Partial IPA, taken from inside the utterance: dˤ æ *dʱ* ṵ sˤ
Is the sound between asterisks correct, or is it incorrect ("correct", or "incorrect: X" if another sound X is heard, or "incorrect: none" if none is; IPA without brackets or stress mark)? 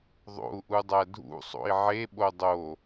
correct